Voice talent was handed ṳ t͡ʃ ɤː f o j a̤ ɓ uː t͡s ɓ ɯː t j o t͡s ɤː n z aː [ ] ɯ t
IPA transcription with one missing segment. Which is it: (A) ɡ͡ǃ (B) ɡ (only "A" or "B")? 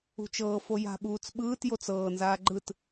A